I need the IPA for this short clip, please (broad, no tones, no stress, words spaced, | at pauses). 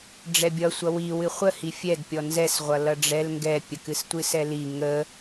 ɖ͡ʐɛbʲʌsʷʌ wi wɨχʷəhi fʲɛd pʲɔnzɛsʁʷʌ lʌɖ͡ʐɛl ŋɡɛpʲəkɨs tʷɨsɛli ŋə